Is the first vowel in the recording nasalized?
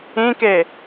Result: yes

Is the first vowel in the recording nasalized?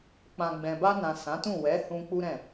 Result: yes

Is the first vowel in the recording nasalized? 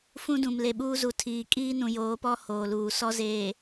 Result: yes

